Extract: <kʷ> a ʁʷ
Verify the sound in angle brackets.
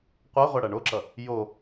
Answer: incorrect: qʷ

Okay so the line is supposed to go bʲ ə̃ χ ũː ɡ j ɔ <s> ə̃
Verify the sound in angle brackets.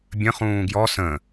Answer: correct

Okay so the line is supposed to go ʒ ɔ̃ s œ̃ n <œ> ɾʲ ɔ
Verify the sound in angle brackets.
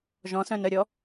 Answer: correct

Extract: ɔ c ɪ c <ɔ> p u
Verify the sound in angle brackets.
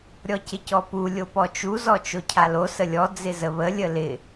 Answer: correct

